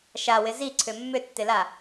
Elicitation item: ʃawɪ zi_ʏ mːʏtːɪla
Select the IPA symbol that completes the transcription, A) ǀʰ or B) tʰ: A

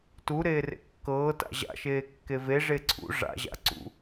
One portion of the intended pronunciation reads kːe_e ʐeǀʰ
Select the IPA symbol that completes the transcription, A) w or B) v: B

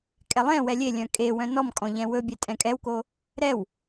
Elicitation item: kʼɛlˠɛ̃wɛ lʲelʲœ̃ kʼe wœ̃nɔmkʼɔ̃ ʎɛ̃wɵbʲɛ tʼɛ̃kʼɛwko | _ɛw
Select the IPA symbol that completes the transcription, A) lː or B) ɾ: B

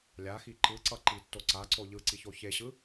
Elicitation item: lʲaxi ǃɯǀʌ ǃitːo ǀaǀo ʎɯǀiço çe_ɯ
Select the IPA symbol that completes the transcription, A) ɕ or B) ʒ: A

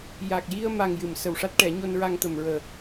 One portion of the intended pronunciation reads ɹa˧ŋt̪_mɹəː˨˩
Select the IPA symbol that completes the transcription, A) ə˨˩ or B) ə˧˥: A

